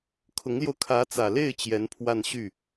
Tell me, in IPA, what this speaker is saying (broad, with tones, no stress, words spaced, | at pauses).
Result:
kʰʊ˧˥ŋljo˧ʊ̯ kʰä˧˥t͡sä˨˩le˥˩ɪ̯ t͡ɕjɛ˧˥npʰwa˥˧nɕy˥˩